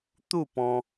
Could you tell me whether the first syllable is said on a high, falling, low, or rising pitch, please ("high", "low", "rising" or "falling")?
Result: falling